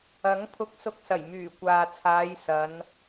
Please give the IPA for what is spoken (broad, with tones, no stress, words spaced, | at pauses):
ɐ˨˥ŋpʰʊ˧k̚sʊ˧k̚sɐ˨˩j myː˨˩kʷaː˨t͡sʰaː˨˧j sɐ˨˧n